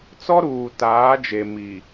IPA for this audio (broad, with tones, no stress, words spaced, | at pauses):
t͡sɔ˦ɾuː˨taː˨˦d͡ʒe˨ mi˨